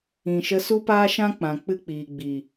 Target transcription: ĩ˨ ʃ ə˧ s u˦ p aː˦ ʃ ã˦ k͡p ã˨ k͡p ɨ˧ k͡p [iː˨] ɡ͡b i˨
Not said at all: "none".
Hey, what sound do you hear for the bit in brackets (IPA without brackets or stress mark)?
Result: iː˨